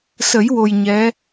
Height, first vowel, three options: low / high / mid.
mid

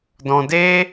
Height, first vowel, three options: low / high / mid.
mid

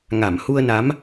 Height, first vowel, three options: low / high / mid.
low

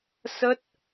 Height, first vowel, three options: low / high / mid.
mid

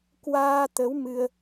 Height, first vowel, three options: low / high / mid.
low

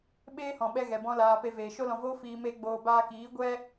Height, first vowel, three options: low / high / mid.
mid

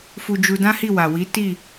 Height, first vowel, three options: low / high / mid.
high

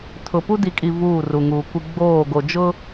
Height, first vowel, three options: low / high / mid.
high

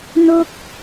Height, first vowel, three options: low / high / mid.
mid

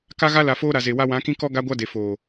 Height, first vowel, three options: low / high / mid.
low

